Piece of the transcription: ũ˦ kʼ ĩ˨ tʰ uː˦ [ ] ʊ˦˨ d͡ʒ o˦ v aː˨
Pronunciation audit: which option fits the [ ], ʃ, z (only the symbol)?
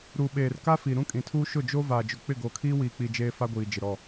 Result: ʃ